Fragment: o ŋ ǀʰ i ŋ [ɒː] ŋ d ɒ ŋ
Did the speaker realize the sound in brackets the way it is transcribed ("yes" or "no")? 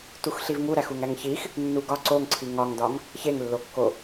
no